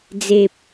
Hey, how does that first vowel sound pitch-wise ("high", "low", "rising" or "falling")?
low